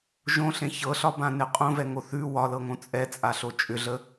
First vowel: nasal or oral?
nasal